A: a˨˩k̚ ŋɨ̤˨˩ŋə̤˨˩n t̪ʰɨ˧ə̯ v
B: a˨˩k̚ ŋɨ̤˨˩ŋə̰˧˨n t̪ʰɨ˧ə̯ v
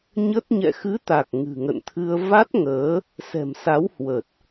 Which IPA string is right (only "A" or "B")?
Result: B